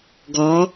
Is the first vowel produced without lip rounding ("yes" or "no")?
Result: no